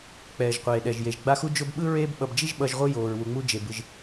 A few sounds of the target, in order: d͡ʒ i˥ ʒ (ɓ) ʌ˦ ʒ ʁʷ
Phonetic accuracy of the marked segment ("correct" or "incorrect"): correct